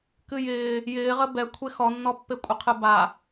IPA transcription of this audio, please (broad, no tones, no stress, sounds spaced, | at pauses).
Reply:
k ɨ j ɪː | j ɪː ʁ ə b ɛ kʷʰ e x ɔ nː ɔ pː e kʷʼ ə qʰ ɨ b a